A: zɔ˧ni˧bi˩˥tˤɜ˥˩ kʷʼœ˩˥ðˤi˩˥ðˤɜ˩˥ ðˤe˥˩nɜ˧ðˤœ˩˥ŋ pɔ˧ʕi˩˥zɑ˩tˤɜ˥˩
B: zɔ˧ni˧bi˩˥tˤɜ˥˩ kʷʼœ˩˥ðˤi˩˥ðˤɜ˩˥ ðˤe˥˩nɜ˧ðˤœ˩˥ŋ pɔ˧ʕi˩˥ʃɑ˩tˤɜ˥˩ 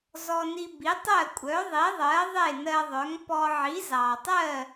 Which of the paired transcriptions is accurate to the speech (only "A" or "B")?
A